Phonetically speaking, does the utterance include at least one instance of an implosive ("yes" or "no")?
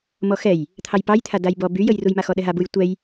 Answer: yes